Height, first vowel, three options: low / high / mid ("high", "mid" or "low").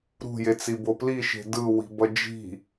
high